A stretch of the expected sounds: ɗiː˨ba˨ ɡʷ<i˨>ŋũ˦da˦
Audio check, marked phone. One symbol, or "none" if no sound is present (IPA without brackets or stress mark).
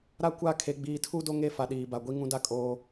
i˦